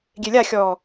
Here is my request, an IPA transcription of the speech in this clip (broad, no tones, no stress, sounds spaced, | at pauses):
ɡʲ e lʲ a xʲ ɔː